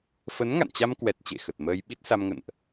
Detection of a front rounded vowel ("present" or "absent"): absent